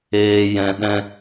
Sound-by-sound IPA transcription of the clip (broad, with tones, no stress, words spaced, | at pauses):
eː˧jɛ̃˧ ɗɛ̃˦